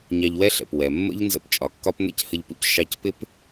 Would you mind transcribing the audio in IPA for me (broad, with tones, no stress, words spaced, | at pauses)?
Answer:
ɲɑ˧ʎwɛ˥ɬɛ̰˩p wɛ˩ mːə̰˥ʎnzə̰˧p t͡ʃʼɒ˩kːɒ˥p n̪ɛ̰˥chə˧ʎpṵ˥c ʃɑ˧cpɪ˥p